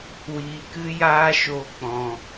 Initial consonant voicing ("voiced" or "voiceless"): voiced